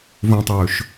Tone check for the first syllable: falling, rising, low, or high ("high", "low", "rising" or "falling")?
high